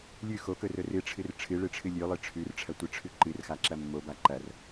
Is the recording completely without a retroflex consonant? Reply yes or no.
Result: no